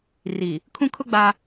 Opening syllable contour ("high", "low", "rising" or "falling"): low